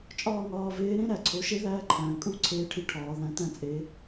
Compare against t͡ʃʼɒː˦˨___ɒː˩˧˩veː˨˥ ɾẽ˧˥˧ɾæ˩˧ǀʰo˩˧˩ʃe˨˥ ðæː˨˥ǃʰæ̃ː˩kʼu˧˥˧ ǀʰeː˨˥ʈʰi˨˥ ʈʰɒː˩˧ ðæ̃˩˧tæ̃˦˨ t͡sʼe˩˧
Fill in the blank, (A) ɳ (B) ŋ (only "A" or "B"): B